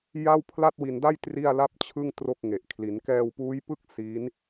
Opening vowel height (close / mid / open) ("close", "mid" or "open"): open